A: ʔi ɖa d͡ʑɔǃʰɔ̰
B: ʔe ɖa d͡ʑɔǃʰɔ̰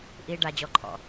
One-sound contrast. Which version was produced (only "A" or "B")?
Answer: A